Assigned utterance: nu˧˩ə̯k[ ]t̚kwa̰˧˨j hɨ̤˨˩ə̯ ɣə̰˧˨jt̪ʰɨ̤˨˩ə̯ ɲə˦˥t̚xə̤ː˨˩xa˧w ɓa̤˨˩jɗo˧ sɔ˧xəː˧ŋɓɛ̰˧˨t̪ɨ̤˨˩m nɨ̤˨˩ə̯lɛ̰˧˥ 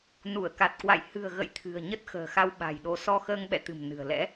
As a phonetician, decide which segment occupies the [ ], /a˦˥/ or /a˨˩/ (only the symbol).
a˨˩